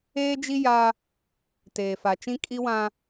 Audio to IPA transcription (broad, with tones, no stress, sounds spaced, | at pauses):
eː˦ d͡ʒ i˦ j a˦ | t eː˨ f a˨ t͡ʃ ĩ˦ kʼ i˦ w ã˦